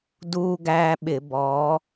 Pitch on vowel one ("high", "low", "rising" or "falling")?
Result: high